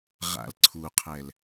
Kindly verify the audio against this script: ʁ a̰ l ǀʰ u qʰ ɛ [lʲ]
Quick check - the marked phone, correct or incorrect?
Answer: incorrect